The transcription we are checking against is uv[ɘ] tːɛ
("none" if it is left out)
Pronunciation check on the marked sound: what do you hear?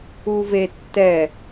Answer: e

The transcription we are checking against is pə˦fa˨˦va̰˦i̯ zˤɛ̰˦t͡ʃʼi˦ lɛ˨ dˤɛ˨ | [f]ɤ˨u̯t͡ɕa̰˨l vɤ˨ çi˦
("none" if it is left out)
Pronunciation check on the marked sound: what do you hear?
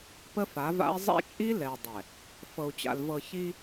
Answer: f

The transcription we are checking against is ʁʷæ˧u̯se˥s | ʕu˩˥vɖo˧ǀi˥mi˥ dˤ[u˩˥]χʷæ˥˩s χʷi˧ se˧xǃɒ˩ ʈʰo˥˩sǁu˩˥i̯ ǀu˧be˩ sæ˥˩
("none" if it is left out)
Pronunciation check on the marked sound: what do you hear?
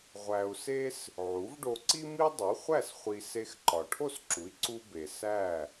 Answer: u˩˥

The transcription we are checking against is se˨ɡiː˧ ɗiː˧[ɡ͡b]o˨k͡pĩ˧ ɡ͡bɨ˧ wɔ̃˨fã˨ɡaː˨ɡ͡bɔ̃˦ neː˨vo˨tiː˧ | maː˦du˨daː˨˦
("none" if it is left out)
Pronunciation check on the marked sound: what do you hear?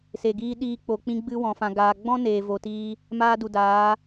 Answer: k͡p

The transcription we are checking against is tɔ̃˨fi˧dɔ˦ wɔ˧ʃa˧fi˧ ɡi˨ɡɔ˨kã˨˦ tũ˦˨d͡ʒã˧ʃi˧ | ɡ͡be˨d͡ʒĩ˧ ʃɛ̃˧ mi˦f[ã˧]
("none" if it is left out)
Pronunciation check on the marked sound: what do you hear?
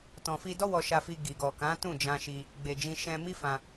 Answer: ã˧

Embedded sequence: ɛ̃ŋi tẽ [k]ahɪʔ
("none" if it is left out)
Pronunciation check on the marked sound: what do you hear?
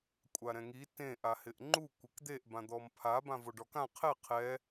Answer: ʔ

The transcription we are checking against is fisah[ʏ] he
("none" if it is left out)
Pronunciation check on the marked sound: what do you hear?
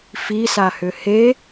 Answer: ʏ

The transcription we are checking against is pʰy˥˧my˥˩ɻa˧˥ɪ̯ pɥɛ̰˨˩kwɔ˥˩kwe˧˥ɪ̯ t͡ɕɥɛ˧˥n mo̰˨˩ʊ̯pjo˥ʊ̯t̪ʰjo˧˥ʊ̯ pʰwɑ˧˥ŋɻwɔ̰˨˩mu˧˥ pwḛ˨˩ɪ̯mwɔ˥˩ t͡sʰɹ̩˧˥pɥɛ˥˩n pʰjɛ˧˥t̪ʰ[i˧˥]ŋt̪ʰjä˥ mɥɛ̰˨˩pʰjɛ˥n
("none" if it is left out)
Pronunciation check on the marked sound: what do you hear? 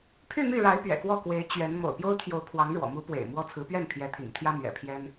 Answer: ḭ˨˩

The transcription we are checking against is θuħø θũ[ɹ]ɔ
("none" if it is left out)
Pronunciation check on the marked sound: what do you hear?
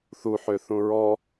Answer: ɹ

